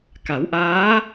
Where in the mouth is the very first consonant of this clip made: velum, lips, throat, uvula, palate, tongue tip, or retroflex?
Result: velum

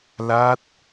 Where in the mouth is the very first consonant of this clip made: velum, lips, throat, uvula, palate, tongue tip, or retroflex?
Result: tongue tip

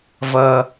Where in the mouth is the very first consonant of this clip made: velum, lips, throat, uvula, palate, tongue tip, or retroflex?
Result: lips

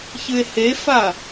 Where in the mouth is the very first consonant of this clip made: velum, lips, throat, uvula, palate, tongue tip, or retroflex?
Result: palate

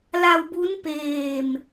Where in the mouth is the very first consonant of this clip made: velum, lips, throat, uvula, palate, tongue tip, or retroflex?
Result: tongue tip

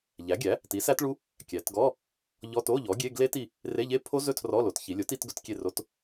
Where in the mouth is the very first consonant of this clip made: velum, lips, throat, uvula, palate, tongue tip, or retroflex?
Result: palate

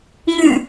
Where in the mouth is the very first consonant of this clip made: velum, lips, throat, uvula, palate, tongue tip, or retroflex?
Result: velum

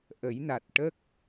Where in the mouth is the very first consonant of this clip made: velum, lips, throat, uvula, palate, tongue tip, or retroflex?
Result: throat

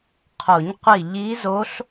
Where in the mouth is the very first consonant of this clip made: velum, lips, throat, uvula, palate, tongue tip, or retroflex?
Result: uvula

